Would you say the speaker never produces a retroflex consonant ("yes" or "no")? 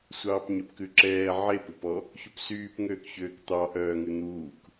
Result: yes